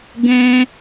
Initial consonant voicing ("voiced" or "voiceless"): voiced